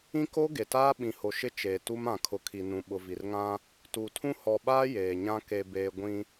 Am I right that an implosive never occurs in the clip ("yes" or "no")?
no